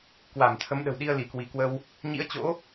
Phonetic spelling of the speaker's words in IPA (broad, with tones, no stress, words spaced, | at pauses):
kwa˧˩m t̪ʰə˨˦mɗə̤˨˩wɗi˧ə̯ li˧˩kwi˧˩kwə˧w | ɲḭ˧˥ə̯t͡ɕo̰˧˥